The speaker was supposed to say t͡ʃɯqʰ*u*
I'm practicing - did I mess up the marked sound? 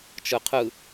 yes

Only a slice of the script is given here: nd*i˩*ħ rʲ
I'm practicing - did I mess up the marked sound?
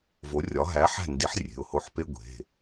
yes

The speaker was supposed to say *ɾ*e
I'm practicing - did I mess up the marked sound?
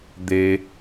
yes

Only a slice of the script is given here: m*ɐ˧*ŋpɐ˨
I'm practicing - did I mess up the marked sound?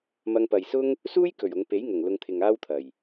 no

